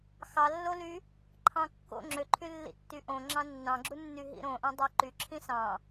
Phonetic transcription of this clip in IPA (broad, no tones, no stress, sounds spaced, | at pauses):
x ɑ lː o l y | ǃʰ ɑ̃ kː o̰ ŋ͡ǁ ø ǃʰ y lː ḭ tː y ʔ õ ŋ͡ǁ ɑ̃ nː ɑ̃ ɡ͡ǁ u nː y ɦ ḭ ɾ õ ʔ ɑ̃ dˤ ɑ ǃ y ǁʰ ĩ s ɑ̃